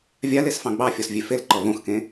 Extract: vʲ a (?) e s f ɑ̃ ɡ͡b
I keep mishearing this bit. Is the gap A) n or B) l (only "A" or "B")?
B